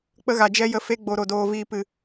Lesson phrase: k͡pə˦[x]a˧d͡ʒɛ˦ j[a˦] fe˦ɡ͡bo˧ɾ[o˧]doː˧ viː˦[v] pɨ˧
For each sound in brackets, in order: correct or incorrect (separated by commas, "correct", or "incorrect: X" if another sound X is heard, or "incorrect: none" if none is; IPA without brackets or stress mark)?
incorrect: ɣ, incorrect: ə˦, correct, incorrect: none